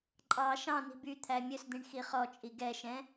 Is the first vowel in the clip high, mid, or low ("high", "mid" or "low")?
low